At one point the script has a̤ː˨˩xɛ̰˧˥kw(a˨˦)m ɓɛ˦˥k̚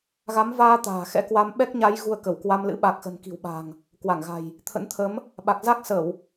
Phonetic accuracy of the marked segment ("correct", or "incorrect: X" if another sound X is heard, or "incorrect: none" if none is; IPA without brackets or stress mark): incorrect: a˧